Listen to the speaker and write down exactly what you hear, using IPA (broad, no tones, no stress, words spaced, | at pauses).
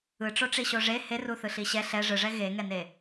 ɯʈ͡ʂoʈ͡ʂiɕo ʐe heruθɯɬi ɕɛ ɬɛ ʐɯʐɛ ɣeŋɛne